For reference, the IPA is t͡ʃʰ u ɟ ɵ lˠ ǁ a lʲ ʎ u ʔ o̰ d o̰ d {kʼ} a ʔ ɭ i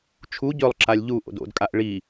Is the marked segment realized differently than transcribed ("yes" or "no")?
no